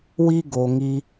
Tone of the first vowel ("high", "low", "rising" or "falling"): high